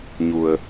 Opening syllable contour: low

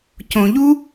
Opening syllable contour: low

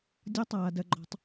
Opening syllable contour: high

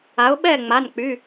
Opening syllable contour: rising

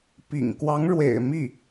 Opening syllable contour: low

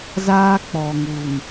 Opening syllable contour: high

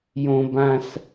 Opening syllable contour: high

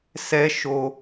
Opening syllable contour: high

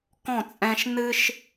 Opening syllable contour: falling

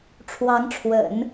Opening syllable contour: rising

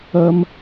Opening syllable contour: high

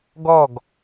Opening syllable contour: falling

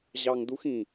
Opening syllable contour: low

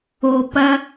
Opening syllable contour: low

